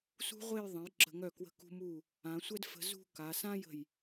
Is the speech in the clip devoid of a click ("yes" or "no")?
no